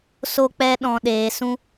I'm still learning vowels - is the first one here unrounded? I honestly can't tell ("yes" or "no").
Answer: no